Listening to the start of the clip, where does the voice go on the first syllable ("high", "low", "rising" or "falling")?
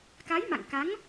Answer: rising